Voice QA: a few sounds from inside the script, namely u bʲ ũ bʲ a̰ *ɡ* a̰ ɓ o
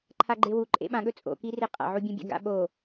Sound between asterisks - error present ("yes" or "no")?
no